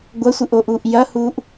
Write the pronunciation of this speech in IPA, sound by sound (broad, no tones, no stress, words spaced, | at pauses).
ɡʷɐsʷɨʔoʔuːʔ jɐhuːʔ